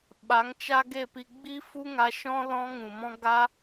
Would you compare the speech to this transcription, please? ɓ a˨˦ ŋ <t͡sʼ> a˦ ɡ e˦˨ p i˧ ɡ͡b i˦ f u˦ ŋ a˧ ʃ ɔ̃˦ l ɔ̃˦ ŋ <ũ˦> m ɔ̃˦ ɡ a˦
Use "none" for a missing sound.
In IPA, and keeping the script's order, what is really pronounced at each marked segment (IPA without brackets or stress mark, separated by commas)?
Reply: t͡ʃ, ũ˨